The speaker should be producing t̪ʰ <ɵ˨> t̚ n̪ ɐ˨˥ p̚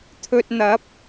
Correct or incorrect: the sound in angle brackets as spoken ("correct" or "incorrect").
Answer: correct